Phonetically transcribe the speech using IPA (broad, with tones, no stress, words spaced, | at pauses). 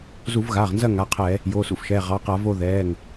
zu˧˩˧vɣaː˩˧˩ʁnzɐ˦˨ ŋa˩˧˩qʰɛ˧˩˧ | jo˩˧˩sṵ˦˨fʃɛː˩˧˩ ʁɑ˩˧˩qa˧˩˧vo˦˨ ðɛː˩˧˩ŋ